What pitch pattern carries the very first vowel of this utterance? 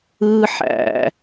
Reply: high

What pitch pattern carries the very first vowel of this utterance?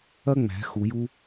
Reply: high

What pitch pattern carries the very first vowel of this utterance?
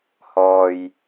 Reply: low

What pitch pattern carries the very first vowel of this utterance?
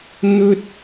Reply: high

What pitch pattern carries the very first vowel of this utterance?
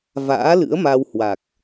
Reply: rising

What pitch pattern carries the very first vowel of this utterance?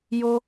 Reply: high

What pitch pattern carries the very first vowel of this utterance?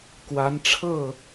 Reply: rising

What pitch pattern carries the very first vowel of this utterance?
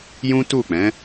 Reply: high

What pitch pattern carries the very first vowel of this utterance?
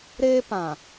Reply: high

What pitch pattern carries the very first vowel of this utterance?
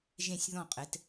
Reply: falling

